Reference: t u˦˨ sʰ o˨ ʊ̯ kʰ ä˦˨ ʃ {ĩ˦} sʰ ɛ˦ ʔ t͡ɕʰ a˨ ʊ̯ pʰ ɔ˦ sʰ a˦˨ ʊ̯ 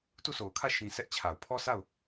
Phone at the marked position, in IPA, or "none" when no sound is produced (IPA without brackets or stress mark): ĩ˨